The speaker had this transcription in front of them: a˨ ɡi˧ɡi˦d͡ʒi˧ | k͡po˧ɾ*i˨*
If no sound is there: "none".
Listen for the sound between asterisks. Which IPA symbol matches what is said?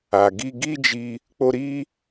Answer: i˦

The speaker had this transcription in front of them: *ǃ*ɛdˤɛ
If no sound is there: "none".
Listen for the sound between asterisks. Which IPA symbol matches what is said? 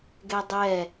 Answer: ɡ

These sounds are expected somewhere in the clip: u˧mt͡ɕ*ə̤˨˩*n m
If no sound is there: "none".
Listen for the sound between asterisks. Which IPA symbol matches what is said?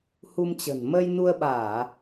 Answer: ə̤˨˩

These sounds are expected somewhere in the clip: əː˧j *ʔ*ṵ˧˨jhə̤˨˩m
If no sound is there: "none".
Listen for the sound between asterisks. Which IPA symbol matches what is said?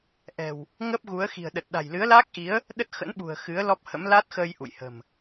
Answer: ʔ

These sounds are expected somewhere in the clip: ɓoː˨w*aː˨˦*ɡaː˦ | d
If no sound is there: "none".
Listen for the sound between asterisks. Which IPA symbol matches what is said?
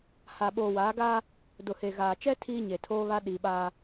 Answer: aː˨˦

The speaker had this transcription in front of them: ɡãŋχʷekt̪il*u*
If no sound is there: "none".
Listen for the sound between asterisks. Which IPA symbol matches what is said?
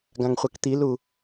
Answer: u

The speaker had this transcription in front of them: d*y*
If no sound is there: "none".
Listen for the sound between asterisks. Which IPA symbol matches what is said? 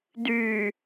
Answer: y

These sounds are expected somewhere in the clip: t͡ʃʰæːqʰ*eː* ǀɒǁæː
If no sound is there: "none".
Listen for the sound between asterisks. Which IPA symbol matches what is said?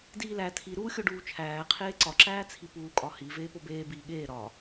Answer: eː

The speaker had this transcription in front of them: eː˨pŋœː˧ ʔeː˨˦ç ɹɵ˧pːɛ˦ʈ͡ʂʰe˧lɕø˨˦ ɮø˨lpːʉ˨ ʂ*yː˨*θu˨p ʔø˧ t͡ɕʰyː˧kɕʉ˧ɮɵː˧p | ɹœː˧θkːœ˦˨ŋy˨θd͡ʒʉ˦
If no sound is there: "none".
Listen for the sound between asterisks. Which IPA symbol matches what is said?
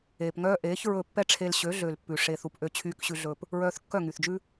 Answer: eː˨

